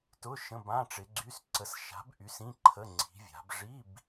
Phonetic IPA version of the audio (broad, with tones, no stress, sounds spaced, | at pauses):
t ʊ˧˥˧ ʃ ə̃˧˥˧ b ã˧˥˧ ʈ͡ʂ ɪ˨˦ ɡ͡ǀ y˧˥˧ s ǀ ə˨˦ s ʃ a̤˨˦ b ʔ y˨˦ s ĩ˧˥˧ ǃʰ ə˧˥˧ ŋ͡ǀ i̤˨˦ vʲ a̤˨˦ b ʐ i˧˥˧ b